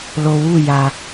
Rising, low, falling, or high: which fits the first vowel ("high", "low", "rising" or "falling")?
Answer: low